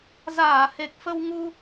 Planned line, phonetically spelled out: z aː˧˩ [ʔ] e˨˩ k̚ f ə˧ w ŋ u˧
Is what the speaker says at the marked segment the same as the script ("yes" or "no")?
no